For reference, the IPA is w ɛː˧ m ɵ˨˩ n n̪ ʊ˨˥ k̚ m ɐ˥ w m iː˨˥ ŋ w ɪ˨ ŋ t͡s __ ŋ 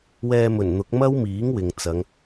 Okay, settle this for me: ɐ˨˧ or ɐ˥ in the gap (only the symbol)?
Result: ɐ˨˧